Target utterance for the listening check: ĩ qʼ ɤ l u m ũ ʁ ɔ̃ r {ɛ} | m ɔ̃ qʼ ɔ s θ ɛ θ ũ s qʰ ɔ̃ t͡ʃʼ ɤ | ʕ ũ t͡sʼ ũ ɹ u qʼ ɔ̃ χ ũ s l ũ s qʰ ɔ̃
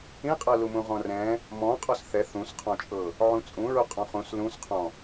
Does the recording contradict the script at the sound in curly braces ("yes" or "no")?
yes